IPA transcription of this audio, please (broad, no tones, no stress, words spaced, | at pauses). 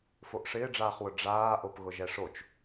foʔʂɪːɖ͡ʐaːχwʊ ɖ͡ʐaːʔopɣʊ ʒɛʂot͡ʃ